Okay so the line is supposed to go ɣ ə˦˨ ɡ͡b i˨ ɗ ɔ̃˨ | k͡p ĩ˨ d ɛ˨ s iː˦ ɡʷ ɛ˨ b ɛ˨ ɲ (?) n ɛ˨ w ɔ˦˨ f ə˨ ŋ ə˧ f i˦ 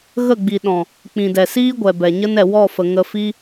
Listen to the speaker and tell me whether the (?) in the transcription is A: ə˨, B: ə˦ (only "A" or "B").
B